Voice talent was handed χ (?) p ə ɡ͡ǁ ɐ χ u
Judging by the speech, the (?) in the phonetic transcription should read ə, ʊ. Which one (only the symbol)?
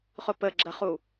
ʊ